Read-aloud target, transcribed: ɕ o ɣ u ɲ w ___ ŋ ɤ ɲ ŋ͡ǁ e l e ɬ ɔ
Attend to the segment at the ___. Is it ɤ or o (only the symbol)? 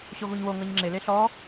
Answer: o